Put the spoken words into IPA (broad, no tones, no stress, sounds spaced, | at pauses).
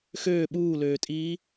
x øː ɓ uː l øː tʼ iː